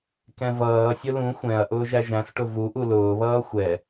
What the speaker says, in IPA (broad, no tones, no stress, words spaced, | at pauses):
kɛ̃vʌːsʲʊ lũ xʷɛ̃ɐ̯ ʔʊːʒæʒæ̃sʈʊ vuʔu lʊːβʌː xʷɛ